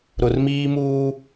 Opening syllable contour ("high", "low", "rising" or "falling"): low